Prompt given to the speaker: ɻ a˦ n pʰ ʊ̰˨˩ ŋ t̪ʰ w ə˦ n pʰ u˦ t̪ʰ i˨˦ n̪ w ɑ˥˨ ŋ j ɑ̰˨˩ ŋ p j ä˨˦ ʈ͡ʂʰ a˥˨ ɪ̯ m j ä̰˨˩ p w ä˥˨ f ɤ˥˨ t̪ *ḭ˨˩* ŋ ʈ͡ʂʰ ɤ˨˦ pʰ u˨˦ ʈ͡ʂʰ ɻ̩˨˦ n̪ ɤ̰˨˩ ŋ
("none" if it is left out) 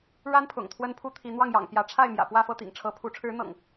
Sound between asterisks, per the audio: ḭ˨˩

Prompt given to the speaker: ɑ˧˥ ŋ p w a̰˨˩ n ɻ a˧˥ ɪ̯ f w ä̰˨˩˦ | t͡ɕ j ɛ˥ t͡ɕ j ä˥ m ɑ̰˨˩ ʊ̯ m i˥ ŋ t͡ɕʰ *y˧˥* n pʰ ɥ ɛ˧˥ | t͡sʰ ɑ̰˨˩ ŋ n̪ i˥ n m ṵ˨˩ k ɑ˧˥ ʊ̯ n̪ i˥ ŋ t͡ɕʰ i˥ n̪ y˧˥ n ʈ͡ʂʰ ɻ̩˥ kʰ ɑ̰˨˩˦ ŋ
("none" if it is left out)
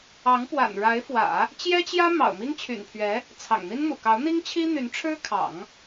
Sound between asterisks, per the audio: y̰˨˩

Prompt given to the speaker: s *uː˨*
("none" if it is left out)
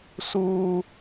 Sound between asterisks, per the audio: uː˦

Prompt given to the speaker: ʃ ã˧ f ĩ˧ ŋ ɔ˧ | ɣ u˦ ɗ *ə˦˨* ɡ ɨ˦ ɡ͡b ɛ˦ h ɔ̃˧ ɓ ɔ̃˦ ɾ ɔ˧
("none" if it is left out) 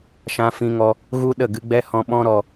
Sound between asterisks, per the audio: ə˦˨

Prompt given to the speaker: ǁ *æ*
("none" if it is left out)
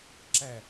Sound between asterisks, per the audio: æ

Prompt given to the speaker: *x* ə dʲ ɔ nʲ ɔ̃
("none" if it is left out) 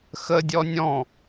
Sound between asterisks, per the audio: x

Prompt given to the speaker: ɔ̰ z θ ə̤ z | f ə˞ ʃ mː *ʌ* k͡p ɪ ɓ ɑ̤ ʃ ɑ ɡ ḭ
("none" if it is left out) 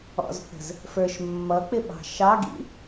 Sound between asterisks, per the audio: ʌ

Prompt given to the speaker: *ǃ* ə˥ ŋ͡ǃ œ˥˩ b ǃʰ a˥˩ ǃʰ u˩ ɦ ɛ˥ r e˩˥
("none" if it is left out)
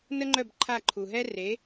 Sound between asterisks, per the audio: n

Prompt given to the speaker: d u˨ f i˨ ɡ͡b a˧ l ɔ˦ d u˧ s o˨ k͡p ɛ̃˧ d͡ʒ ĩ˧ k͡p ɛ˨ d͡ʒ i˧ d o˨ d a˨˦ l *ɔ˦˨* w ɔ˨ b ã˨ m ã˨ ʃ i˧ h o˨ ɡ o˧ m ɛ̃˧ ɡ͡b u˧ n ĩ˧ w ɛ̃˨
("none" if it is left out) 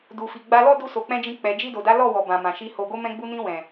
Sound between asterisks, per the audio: ɔ˦˨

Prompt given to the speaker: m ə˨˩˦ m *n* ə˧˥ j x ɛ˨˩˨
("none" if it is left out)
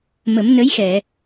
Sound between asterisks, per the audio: n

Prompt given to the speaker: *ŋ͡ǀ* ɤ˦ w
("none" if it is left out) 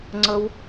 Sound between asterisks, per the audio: ŋ͡ǀ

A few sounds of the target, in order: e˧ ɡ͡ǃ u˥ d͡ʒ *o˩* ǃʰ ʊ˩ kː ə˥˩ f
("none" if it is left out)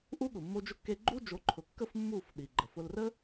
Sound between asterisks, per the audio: o˩˥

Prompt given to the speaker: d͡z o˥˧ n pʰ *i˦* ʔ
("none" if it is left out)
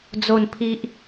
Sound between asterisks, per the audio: i˦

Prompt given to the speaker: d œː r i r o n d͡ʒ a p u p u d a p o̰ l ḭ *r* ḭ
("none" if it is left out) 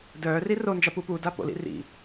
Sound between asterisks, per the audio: r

